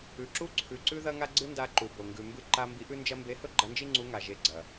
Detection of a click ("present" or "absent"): present